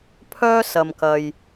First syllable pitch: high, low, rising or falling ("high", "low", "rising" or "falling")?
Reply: high